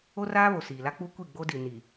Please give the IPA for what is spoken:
o˦ r aː˦ β o˨ s iː˨ l a˦ k͡p u˦ kʷ i˦˨ ɡ͡b o˦ d i˨ n i˨

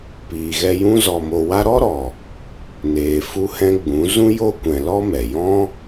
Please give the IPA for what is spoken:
p iː˨ ɣ ɛ˧ j ũ˦ z ɔ˨ m o˨ w a˦ ɾ ɔ˦ ɾ ɔ˨ | n eː˨ f u˦ h ɛ̃˦ ɡ͡b ũ˨˦ z ũ˦ j o˦ kʷ ɛ̃˨ l ɔ˦ m ɛ˨ j ɔ̃˦

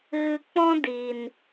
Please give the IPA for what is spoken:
ɣ ɨ˧ k͡p ɔ̃˦ d i˨ n

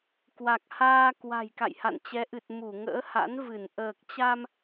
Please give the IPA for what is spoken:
k w a˨˩ k̚ h aː˧ k w a̤˨˩ j k a̰˧˨ j h a̰˧˨ n t͡ɕ ɛ˨˦ ʔ ɨ˨˩ t̚ m u˧˩ ŋ ə̰ː˧˥ h a̰˧˥ n v ɨ˧˩ n ʔ əː˨˩ k̚ t͡ɕ a˧ m

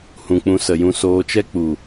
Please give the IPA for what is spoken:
h ũ˨ k͡p ũ˧ s ə˨ j ũ˧ s oː˧ t͡ʃ ɛ˦ k͡p u˨

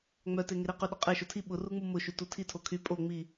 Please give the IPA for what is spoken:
ŋ͡m œ t e ŋ e ɾ i q y ɗ ʊ qʼ e ʃ o tʰ i ɓ ʊ r u ŋ͡m u m ʊ ʃ y t u tʰ i tʰ o kʰ y pʼ o ŋ͡m i

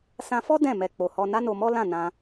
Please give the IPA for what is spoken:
s ã˧ f ɔ˦ d ɛ̃˦˨ m ɛ˨ k͡p o˨ h ɔ˧ n a˦ n o˧ m ɔ˦ l ã˦˨ n ã˧

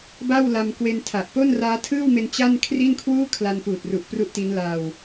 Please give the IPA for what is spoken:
b a˥˩ w l a˧ m k w e˧ n tʰ a˨˩ ʔ p o˥˩ n r aː˦˥ tʰ ɯː˥˩ w m e˧ n t͡ɕ a˥˩ n kʰ r i˥˩ n kʰ w uː˥˩ kʰ l a˧ n p uː˨˩ t̚ r u˨˩ ʔ p r u˥˩ ʔ t i˦˥ n l a˧ w

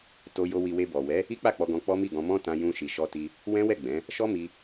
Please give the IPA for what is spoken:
t o˧ j o˧ w i˨ w e˧ b ɔ˨ w ɛ˨˦ | i˦ k͡p a˦˨ k͡p ɔ˧ ɡ ɔ̃˧ k͡p ɔ˦ m i˦˨ ɡ ɔ̃˧ m ɔ̃˦ t ã˧ j ũ˧ ʃ i˨ ʃ ɔ˧ t i˧ | w ɛ̃˦ w ɛ˦˨ ɡ͡b ɛ̃˨˦ | ʃ ɔ˦ m i˧

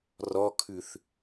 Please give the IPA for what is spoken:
r ɔ kʰ ʉ θ

